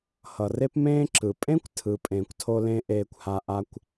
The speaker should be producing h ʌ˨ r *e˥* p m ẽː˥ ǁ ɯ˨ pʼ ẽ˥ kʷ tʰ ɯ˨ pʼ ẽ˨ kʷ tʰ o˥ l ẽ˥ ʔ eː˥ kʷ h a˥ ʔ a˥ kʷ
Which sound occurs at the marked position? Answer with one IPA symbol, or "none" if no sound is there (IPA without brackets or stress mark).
e˥